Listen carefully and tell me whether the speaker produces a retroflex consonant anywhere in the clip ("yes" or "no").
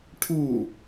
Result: yes